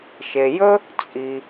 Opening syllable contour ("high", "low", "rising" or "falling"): low